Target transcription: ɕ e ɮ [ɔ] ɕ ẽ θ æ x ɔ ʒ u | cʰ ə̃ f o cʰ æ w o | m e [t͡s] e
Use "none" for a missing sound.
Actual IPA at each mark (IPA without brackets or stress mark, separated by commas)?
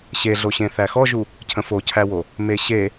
o, ɕ